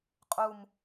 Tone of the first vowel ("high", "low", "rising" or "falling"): low